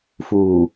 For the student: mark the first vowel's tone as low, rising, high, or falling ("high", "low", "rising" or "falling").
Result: low